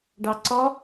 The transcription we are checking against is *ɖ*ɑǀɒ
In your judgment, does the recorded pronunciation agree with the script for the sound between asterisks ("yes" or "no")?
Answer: yes